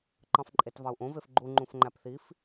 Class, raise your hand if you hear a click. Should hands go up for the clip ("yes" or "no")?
yes